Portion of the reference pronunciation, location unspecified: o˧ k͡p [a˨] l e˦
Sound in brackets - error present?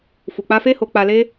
yes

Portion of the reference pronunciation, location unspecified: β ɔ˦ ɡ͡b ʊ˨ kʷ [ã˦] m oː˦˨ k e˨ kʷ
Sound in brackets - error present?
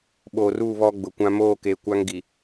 no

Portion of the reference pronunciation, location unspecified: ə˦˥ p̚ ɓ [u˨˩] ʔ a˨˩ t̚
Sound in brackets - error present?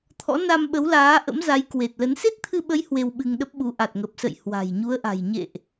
yes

